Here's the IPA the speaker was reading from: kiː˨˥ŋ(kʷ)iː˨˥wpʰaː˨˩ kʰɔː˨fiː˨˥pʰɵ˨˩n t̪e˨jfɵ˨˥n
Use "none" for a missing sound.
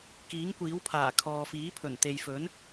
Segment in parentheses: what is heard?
kʷ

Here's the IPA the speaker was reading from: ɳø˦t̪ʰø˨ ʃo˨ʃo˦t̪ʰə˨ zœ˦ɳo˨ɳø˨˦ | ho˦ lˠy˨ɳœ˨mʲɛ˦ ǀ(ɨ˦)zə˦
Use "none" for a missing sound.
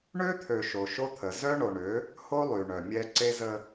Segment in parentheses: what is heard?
e˦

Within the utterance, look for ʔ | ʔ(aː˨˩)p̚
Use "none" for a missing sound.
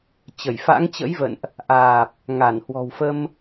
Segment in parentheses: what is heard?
aː˨˩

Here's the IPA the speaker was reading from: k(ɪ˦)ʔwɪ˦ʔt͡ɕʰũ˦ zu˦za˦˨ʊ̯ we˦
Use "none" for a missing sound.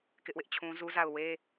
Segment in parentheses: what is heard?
ɪ˦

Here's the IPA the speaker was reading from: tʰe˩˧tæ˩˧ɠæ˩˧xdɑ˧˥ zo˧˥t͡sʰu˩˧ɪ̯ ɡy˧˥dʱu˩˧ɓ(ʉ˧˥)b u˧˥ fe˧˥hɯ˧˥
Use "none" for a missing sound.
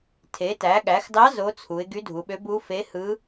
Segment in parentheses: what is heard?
ø˧˥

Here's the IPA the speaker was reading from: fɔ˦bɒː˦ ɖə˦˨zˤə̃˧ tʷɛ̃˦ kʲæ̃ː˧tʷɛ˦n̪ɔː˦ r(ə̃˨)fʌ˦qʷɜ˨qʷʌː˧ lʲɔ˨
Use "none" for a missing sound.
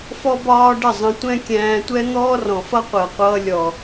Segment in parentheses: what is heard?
ɔ̃˨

